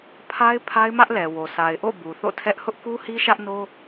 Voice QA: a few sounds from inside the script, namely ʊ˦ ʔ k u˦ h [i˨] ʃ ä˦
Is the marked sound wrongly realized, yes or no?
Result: yes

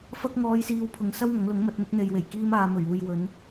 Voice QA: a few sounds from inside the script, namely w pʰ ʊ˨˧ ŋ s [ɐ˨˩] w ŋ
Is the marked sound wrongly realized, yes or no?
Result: yes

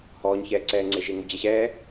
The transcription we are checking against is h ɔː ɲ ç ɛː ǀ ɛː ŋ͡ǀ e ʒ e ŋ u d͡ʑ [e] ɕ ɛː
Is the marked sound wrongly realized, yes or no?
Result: no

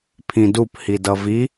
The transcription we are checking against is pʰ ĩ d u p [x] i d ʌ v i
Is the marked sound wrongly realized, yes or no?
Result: yes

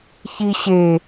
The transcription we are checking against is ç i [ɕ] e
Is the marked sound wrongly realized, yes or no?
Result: no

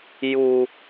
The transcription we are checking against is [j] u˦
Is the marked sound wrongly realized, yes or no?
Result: no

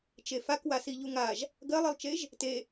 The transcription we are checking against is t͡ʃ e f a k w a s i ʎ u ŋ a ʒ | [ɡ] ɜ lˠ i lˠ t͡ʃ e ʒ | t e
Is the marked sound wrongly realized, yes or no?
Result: no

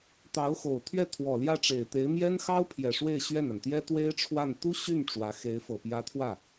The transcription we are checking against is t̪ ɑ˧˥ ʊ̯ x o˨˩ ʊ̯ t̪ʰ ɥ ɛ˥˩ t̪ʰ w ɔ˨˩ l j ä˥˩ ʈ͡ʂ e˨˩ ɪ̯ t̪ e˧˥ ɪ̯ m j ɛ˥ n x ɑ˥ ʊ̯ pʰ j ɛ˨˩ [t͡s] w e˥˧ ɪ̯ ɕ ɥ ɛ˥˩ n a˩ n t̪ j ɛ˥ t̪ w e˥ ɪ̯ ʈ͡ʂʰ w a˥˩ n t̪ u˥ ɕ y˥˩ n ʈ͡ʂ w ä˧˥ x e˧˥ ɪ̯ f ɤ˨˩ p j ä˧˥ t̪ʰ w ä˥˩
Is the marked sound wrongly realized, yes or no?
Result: yes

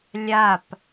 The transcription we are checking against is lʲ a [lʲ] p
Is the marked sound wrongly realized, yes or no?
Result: yes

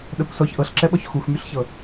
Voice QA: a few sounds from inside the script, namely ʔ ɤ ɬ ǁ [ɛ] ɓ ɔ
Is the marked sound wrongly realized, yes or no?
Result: no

